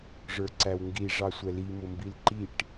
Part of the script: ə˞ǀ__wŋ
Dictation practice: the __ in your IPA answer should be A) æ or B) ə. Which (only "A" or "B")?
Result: A